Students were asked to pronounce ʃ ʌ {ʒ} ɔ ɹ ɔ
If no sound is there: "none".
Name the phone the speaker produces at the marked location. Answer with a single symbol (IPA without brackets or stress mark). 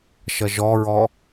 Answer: ʒ